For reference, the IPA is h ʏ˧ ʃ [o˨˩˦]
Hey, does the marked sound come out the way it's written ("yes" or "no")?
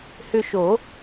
yes